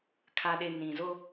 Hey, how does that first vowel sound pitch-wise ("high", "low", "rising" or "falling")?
low